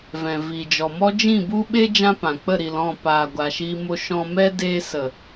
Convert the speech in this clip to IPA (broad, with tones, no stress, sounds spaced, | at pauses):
v ɛ̃˨ v i˨ d͡ʒ ɔ˨ m ɔ˦ d͡ʒ ĩ˦˨ b u˦ ɓ e˦ d͡ʒ ã˦ p ã˨ k͡p ə˦˨ ɾ i˨ l ɔ̃˦˨ p aː˨ ɡʷ a˨ ʃ iː˧ m o˧ ʃ ɔ̃˧ m ɛ˦ d eː˧ s ə˨